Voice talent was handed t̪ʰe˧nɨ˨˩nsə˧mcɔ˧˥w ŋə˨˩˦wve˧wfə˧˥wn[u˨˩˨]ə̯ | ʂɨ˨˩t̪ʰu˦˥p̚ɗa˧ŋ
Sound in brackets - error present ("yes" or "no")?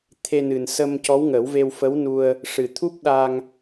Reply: yes